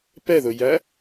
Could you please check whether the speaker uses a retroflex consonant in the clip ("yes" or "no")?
no